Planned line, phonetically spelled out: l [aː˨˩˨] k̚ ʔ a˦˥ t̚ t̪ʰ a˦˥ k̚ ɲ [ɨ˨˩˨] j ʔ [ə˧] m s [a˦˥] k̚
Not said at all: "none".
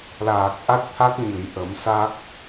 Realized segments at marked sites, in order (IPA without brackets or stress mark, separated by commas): aː˨˩, ɨ˨˩˨, ə˨˩˦, a˦˥